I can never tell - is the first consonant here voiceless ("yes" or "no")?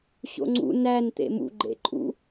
yes